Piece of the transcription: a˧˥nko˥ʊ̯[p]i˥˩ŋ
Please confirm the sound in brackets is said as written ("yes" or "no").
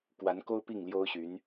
yes